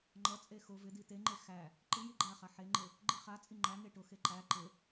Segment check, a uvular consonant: present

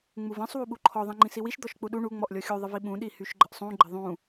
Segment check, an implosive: present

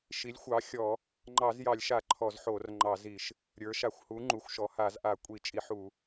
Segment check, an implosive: absent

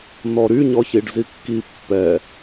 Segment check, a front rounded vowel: present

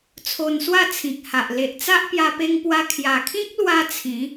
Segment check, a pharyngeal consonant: absent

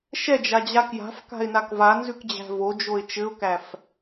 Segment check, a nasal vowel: absent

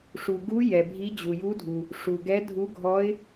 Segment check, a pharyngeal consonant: absent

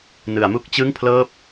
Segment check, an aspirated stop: present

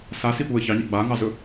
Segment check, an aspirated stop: absent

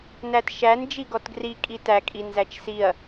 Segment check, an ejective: present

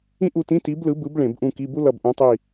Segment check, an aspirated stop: absent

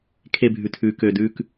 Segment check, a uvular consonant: absent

